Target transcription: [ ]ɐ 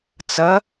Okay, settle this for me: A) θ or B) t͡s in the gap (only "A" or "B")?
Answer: B